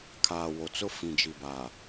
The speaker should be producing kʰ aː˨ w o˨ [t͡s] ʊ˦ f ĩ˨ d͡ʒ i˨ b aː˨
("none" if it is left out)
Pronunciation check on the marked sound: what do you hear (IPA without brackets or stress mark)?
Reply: t͡s